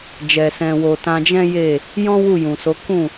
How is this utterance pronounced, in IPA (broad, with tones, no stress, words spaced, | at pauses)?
d͡ʒɛ˨sɛ̃˨wo˨ tã˧d͡ʒɛ̃˦ je˦˨ | jɔ̃˦ wu˦˨jũ˨so˨˦ kũ˦˨